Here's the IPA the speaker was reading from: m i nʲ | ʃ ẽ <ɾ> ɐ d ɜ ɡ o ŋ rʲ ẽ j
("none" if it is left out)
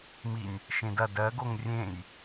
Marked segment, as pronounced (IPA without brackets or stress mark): d